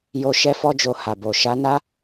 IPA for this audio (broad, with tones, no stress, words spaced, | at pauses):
jo˧ ʃɛ˧fɔ˧d͡ʒo˨ ha˨bo˨ ʃa˨˦na˦